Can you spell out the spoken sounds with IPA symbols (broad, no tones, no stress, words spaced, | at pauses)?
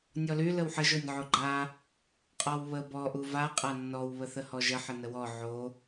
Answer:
nʲɔly ləwħəʒ onʲʕoɡ͡ǃa | qʼɔwβə bɔ ʔuva qʼanːɔw βəθəhɔʒə ħənəwɔ ʕo